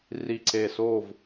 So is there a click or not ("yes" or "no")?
yes